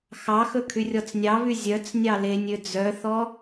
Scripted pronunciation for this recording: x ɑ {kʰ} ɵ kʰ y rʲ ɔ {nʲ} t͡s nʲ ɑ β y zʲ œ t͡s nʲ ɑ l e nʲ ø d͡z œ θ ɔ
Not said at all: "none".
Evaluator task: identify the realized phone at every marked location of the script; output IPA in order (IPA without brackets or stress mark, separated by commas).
x, none